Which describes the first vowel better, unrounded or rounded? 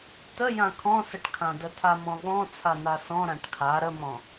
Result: unrounded